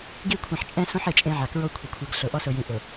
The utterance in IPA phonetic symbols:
ɡ i˦˨ kʷʰ ẽ˨ ħ t͡ʃʼ ɛ̃˦ s õ˦ ħ e˨ t͡ʃʼ ẽ˦ ʕ a˨ k ɹ o˦ kʷʰ ɪ˨ kʷʰ ɛ˨ ɡ ɬ ʊ˨ ʔ ɔ˦ s ʊ˨ j ĩ˨ ʔ ʊ˨

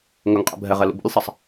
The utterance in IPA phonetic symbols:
ŋ ɵ ŋ qʼ ɛ̰ bʱ ɛ ʁ ɛ l ṵ b ṵ lʲ sˤ ɛ sˤ

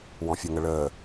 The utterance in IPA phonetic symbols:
w ɔ̃ fʲ o ŋ ə ɭ əː

